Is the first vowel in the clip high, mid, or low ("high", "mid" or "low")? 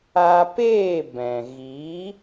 low